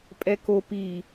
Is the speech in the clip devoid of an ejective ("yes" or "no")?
no